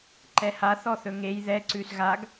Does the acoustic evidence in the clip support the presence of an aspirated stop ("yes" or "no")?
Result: no